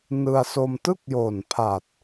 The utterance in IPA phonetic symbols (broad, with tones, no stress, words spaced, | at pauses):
nɯ˧a̯so˧m tɯ˥˩k̚joː˨˩npʰa˨˩t̚